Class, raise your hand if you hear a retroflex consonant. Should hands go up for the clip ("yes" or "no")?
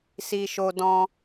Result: no